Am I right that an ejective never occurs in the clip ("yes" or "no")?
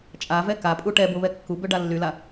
no